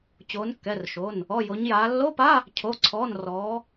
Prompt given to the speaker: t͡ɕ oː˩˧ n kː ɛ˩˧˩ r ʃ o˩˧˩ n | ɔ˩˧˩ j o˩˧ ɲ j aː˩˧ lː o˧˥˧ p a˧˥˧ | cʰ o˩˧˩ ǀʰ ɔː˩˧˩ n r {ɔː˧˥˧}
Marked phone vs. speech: incorrect: ɔː˩˧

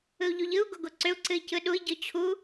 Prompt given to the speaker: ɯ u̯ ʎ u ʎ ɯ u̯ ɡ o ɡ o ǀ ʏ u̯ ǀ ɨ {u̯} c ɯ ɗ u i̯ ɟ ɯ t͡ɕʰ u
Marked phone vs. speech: incorrect: i̯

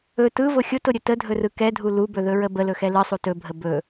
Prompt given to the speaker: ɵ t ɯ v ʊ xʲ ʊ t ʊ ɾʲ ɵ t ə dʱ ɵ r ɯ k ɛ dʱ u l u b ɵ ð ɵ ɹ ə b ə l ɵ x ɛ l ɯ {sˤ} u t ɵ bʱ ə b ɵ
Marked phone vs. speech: correct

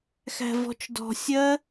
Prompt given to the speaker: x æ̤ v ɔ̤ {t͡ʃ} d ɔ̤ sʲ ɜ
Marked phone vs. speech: correct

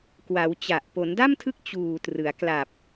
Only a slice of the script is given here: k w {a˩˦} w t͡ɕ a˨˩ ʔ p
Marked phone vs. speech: correct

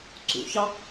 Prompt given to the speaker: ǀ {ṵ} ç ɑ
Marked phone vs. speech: correct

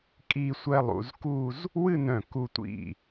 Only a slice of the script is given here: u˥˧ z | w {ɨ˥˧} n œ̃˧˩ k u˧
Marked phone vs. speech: correct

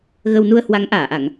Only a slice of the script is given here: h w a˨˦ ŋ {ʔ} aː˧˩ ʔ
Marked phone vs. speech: correct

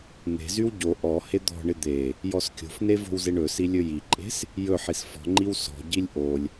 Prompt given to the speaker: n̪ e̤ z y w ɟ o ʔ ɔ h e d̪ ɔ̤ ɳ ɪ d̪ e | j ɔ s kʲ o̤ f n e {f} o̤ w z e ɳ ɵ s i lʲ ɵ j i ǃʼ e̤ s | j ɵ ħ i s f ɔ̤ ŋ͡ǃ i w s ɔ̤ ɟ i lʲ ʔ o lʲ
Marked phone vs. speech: incorrect: v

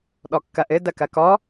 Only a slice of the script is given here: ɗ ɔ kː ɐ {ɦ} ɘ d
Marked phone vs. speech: incorrect: ʔ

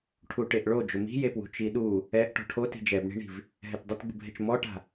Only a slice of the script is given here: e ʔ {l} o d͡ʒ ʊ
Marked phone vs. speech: incorrect: ɭ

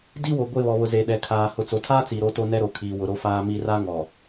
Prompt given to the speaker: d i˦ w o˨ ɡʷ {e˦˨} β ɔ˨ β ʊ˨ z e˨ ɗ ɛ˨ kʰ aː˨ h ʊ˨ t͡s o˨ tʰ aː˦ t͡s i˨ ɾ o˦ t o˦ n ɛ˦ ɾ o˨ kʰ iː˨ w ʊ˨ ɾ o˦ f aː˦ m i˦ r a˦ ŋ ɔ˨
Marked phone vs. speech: correct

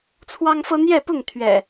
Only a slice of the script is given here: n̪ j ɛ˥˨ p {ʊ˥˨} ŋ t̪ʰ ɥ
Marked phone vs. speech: correct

